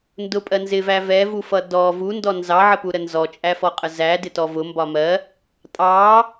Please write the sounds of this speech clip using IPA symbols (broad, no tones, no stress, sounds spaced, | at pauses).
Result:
n d ʊ pʼ ɜ n z ɪ v æ v ɛ v u f ʌ d ɔ v u n d ɔ n z ɑ ʕ ə p u ɾ ə n z ɔ t͡ʃʼ æ f ɔ qʼ ə z æ d ɪ t ɔ v ʊ m b ɒ m ɜ | tʼ ɑ